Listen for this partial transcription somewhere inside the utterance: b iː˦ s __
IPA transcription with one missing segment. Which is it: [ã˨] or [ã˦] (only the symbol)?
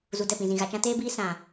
ã˨